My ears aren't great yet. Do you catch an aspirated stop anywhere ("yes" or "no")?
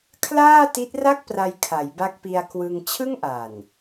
yes